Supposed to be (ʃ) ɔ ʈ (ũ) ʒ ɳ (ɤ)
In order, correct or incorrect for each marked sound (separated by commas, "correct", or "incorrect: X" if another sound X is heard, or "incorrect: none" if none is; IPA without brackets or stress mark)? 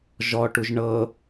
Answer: incorrect: ʒ, incorrect: u, correct